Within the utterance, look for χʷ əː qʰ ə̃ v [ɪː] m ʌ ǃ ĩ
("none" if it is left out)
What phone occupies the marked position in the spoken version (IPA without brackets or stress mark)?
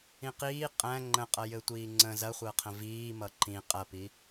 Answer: iː